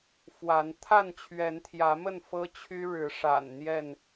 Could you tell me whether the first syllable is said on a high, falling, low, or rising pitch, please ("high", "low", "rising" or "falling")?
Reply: rising